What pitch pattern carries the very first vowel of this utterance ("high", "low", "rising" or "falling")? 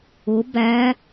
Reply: rising